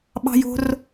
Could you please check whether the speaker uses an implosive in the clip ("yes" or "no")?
yes